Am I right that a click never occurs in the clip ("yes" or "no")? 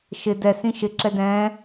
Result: no